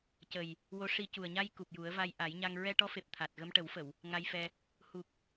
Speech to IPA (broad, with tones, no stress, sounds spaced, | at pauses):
c ə˨˩ j | w o˧˥ ʂ i˧ c u˨˩ ə̯ ɲ a˧ j k u˨˩ p̚ j u˨˩˦ ə̯ v a˧ j ʔ a˨˩˦ j ɲ a˧ ŋ ɹ ɛ˧ ʈ ɔ˧˥ f e˨˩ p̚ t̪ʰ a˨˩ t̚ ɣ ə˧ m ʈ ə˨˩˦ w f ə˨˩˨ w | ŋ a˧ j f ɛ˧ | h u˨˩ k̚